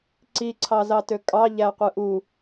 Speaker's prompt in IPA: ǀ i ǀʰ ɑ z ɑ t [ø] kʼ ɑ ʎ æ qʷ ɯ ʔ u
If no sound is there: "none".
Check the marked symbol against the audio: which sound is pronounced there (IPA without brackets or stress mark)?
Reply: ø